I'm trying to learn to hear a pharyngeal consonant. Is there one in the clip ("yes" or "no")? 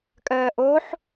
yes